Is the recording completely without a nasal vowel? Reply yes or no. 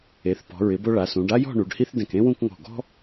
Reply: no